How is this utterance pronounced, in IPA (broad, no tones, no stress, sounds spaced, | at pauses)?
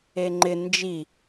e ŋ͡ǃ ɪ n d͡ʒ i